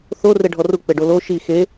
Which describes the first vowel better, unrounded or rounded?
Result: rounded